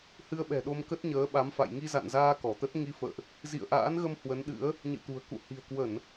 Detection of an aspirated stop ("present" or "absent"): absent